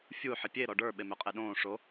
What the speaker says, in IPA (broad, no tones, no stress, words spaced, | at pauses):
fʲu ħəpʲe ɾɔɖə˞ ɓemøqʼeɗõː ʂo